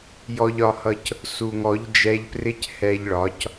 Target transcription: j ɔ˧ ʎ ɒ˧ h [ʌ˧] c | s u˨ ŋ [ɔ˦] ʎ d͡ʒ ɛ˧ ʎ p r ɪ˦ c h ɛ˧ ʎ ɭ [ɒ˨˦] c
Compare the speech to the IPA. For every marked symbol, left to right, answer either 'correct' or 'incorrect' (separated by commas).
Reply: correct, incorrect, correct